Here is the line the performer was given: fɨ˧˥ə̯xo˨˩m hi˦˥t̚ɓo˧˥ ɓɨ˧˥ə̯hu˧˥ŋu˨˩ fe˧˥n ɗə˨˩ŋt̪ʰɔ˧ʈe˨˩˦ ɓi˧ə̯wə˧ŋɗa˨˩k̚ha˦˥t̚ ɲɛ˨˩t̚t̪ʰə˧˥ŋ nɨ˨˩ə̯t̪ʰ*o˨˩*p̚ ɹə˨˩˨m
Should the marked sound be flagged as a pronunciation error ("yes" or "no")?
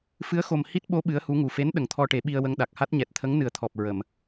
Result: yes